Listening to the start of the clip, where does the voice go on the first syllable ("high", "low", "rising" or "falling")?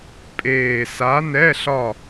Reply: low